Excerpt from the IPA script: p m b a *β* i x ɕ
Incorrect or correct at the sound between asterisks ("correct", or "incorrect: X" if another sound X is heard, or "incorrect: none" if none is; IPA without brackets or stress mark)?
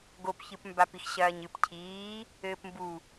incorrect: p